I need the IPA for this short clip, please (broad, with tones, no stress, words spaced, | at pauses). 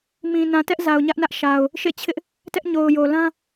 mĩ˨ nã˨tɛ˦ʔ za˨ʊ̯ɲä˦ʔnä˦ʔ ʃa˨ʊ̯ | ʃḛ˦˨ t͡ɕʰɪ˦ʔ | tɛ˦ʔɲo˨ʊ̯jo˨ lã˦